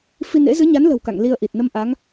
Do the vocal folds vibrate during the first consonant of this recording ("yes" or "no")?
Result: no